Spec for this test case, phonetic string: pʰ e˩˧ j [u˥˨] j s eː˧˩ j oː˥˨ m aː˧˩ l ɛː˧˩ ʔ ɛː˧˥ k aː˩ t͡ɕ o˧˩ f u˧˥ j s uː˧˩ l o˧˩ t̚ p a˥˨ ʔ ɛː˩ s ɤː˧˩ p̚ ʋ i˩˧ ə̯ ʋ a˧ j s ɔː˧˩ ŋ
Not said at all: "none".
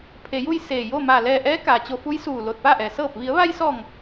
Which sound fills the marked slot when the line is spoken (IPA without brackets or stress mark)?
u˥˨